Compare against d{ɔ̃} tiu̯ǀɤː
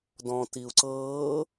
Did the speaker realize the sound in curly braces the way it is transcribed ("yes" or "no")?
yes